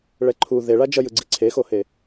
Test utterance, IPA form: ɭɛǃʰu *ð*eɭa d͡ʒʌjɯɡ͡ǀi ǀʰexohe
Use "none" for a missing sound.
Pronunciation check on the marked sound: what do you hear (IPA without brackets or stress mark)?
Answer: ð